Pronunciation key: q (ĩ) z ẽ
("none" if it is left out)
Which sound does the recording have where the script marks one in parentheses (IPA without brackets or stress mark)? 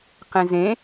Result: ẽ